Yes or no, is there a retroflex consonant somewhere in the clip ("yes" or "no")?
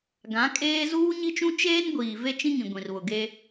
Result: no